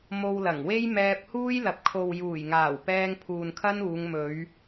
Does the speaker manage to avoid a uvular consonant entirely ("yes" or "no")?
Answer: yes